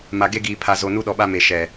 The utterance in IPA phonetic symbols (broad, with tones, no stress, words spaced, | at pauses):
ma˨ɡe˦ɡiː˨ pʰa˨zo˨ nu˦ɗɔ˨ɓa˦ me˨ʃɛ˨